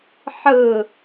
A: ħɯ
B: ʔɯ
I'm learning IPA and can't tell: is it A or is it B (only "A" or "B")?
A